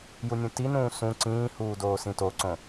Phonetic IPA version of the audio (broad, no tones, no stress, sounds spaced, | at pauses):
j u nʲ ũ t i n ũː s ũ ǀ ĩː h uː d oː s ĩ t o ǀ õ